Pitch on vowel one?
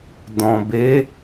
low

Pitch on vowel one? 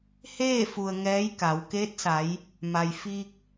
falling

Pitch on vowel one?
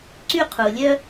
high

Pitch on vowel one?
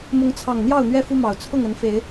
rising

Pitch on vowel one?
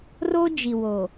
high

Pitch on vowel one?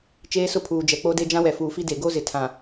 high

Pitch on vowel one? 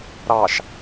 low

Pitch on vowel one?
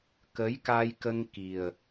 rising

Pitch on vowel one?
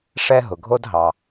high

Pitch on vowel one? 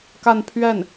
falling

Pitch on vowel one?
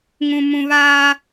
low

